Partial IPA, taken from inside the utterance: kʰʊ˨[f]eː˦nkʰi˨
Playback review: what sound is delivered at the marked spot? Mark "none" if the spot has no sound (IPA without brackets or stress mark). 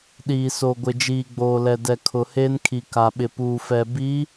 h